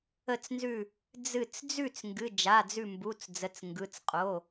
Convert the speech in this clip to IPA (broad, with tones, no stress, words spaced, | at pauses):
ə˧˩t͡snzʉ˧˩ | d͡zɨ˧˩t͡s d͡zʉ˥˩t͡s ŋɡɨ˩˧˩d͡ʒa˩˧˩d͡zʉ˧˩mbu˩˧˩t͡s d͡zə˩˧˩t͡sŋɡɯ˩˧˩t͡sqʼo˩˧˩